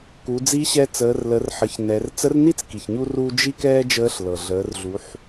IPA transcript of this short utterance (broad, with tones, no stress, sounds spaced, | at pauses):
k u˩˧ d͡z i˧˥ ɕ ɛ˧ t͡s əː˩˧ r l ə˩˧ r ħ ə˩˧ ç n ɛ˩˧ r t͡s ə˧˥ r n i˥ t͡s k i˩ ç ɲ u˥ r uː˥ d͡ʒ i˥ k ɛː˥ d͡ʒ əː˧˥ ɬ l ɤ˩ ɮ əː˩˧ r ɮ u˩˧ ħ